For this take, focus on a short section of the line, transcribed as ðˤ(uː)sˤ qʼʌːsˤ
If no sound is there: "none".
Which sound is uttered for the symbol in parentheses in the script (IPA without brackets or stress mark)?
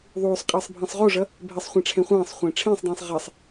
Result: uː